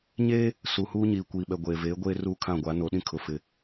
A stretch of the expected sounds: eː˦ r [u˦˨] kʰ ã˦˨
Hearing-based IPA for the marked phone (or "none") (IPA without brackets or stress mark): u˦˨